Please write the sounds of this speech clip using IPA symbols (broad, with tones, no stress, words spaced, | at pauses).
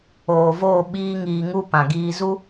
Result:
oː˨voː˦˨ ɓiː˦ŋiː˧ŋu˦pã˨ ɡiː˧zu˦